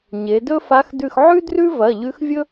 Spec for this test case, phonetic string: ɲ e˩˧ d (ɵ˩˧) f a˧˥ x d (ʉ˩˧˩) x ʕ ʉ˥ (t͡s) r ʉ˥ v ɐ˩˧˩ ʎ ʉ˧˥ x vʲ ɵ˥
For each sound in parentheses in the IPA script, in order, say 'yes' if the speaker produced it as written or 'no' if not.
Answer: no, no, no

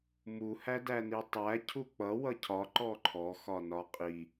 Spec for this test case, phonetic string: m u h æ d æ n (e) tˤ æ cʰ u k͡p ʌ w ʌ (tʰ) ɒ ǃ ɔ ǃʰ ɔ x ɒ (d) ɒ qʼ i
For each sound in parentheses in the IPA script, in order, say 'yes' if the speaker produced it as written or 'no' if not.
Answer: no, no, no

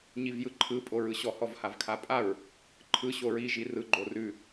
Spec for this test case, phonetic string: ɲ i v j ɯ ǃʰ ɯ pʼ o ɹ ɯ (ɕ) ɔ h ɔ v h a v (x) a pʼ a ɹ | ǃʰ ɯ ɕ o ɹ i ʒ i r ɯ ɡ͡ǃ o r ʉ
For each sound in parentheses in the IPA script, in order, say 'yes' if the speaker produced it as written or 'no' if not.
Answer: yes, no

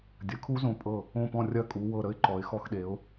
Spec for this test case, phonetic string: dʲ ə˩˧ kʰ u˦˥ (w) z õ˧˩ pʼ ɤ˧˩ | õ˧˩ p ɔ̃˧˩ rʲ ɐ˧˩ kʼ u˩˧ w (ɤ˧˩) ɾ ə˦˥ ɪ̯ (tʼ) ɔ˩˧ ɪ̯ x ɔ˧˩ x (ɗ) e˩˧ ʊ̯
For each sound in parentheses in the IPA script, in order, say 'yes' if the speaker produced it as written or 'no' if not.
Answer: no, yes, no, yes

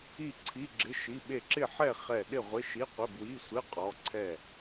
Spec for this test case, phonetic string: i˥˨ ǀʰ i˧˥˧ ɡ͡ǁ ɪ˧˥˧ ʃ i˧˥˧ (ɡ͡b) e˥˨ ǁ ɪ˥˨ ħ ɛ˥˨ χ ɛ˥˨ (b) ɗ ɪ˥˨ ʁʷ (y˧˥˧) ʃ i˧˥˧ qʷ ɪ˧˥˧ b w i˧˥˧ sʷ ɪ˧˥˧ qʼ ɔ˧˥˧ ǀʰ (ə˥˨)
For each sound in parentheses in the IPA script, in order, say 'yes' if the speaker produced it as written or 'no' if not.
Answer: no, no, no, no

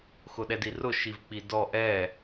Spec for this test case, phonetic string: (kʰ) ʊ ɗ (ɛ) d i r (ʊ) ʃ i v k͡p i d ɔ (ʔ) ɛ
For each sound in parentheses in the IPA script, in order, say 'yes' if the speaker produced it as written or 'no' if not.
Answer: no, yes, yes, yes

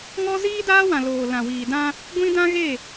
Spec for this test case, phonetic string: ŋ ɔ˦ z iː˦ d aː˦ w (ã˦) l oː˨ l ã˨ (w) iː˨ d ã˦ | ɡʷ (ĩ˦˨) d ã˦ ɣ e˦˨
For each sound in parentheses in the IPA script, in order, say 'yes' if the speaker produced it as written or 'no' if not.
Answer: no, yes, no

